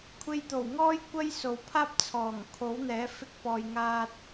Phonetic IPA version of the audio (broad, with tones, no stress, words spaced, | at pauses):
kʷʰe˧jt̪o˨˩wŋɔː˥j kʷɐ˥jso˨w pʰaː˥p̚t͡sʰɔː˨˩ŋ kʰo˨˥wn̪ɛː˨˥ fɪ˧k̚pɔː˨jŋaː˧t̚